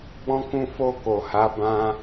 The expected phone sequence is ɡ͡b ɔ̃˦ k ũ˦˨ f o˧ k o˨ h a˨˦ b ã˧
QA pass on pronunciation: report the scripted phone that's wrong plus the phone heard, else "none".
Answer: none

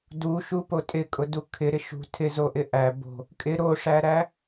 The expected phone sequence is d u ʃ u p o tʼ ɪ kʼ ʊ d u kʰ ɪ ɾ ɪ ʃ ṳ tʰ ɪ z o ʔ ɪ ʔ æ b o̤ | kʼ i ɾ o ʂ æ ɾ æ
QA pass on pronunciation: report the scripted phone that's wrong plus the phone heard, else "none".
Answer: i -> ɪ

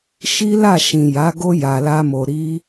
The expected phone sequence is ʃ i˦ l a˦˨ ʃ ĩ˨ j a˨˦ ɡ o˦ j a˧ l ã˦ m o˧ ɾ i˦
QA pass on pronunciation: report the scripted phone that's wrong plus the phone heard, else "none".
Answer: ã˦ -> a˦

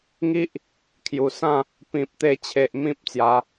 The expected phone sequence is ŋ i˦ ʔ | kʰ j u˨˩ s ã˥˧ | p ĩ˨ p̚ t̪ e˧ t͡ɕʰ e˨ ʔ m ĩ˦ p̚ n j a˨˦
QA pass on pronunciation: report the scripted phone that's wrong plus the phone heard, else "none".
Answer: n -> t͡s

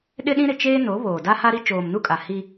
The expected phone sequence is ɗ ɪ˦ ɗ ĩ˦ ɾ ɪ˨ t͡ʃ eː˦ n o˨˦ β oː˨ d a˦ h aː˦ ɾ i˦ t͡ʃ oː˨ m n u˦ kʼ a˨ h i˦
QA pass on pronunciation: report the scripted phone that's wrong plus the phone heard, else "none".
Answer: aː˦ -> a˦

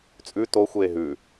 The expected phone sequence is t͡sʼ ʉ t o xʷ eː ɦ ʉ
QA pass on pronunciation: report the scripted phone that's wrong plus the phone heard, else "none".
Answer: none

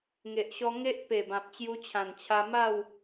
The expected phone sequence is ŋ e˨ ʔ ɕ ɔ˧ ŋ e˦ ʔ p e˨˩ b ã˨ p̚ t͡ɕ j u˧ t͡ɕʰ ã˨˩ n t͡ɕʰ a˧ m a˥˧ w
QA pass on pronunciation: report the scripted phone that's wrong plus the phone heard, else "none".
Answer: none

